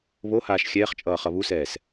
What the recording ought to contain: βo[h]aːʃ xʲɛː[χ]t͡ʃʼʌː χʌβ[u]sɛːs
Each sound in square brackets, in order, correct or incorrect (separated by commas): correct, correct, correct